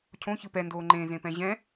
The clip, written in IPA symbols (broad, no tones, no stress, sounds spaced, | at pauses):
cʰ õ ç ɯ p ɛ n d oː ŋ͡ǃ ẽ z ẽ p ɛ̃ ʑ ɛ̃